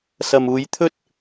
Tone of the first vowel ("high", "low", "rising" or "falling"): low